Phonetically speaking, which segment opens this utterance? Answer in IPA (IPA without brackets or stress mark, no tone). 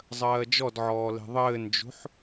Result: zˤ